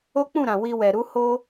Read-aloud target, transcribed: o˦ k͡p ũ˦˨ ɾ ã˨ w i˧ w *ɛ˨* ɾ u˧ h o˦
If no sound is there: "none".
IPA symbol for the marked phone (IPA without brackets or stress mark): ɛ˨